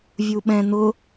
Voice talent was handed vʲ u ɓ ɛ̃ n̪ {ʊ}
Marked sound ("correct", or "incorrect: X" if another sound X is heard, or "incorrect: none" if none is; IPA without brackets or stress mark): correct